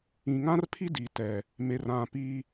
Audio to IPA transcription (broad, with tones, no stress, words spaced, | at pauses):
ĩ˨ŋã˦rpʰi˦ di˨tɛ˨ | me˨rã˨pi˦